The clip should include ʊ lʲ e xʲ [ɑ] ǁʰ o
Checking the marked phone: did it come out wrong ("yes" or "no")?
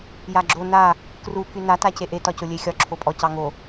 yes